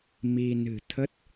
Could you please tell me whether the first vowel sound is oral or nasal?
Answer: oral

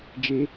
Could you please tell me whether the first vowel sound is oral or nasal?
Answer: oral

